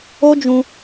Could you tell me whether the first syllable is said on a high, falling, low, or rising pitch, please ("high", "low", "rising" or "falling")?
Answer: high